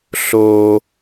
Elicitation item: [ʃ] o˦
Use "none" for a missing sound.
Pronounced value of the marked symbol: ɬ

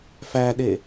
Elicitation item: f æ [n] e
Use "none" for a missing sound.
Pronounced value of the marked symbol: ɗ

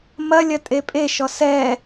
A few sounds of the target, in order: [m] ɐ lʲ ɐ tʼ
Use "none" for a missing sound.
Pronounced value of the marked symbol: m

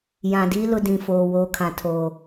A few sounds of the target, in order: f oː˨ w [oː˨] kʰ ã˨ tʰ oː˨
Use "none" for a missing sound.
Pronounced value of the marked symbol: oː˦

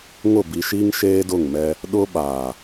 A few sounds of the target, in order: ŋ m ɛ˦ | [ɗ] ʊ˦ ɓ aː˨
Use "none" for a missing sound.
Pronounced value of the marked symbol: ɗ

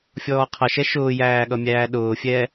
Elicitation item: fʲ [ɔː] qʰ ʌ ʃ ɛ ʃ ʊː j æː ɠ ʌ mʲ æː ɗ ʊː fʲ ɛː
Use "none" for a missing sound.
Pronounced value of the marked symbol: ɔː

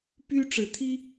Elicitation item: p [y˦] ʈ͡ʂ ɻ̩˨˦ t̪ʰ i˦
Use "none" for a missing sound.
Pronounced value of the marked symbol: y˦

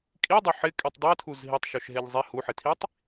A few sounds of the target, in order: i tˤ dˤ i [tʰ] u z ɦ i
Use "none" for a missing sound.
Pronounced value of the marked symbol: tʰ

